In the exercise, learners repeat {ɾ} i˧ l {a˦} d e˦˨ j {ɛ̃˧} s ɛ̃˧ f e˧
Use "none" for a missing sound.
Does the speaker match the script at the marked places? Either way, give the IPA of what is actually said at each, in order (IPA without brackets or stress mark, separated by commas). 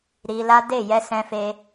ɾ, a˦, ɛ˧